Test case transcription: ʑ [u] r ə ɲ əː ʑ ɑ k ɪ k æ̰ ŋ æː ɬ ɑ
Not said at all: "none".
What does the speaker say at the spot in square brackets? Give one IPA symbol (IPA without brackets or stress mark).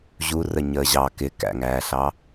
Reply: u